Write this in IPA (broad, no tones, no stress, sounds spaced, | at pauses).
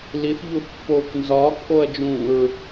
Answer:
l i θ ʎ u θ pː oː k n z ɒː k ʔ o ɐ̯ d͡ʒ ũː ɹ